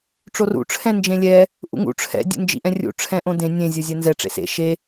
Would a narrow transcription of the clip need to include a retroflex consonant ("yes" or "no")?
yes